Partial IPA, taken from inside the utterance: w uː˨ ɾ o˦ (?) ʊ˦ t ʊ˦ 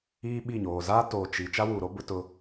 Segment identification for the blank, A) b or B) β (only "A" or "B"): A